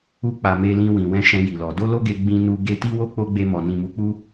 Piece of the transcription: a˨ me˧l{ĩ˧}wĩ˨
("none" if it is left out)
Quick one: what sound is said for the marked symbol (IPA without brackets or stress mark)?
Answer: ĩ˧